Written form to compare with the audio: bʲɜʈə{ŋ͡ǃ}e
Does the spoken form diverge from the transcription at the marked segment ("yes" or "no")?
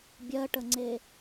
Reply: yes